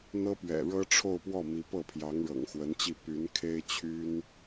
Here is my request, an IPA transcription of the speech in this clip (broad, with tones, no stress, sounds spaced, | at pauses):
n̪ ɤ˥ p ɥ ɛ̰˨˩ ɻ ɤ˥ ʈ͡ʂʰ o˥˧ ʊ̯ p w ɔ˥˩ m i˧˥ p ɤ˥˩ pʰ j ɑ˧˥ ŋ ɻ ɤ̰˨˩ ŋ x w ə˧˥ n t͡ɕ i˥˩ p y˧˥ n kʰ e˥ ɪ̯ t͡ɕʰ y˥ n